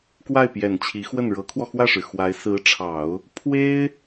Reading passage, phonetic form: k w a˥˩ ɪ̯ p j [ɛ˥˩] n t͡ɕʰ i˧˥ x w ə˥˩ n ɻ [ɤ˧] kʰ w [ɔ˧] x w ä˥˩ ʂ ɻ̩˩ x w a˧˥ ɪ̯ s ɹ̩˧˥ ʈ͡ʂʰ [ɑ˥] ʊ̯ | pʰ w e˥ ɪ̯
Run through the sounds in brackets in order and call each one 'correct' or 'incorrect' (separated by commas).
incorrect, incorrect, correct, incorrect